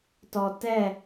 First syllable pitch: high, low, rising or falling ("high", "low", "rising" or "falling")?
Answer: low